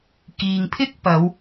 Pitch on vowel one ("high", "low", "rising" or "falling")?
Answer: low